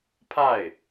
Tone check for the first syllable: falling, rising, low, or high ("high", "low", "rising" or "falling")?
falling